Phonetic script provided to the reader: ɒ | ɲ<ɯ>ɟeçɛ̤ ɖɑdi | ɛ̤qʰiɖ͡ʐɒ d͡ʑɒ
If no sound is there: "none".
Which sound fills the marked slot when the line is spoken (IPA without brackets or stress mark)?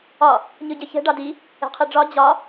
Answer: ɯ